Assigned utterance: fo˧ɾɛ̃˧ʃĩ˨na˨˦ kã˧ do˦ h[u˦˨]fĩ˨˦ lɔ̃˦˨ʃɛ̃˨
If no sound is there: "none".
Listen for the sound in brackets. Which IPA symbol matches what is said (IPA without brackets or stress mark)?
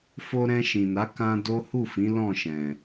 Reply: u˦˨